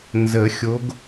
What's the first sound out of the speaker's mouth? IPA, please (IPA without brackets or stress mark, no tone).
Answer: n